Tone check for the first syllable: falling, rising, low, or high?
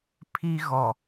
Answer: high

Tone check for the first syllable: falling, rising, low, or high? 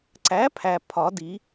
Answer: rising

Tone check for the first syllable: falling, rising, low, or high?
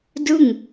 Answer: falling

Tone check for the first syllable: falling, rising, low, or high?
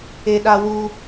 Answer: high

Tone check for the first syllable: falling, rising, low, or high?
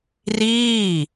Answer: falling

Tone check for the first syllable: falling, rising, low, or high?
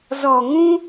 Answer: low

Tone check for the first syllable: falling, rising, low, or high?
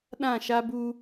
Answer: falling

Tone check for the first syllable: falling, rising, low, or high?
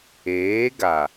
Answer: rising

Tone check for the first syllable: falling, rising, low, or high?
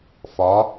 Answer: rising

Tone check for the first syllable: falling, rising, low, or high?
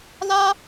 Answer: high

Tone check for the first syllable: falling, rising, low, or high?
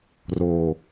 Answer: low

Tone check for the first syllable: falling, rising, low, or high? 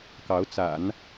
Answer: rising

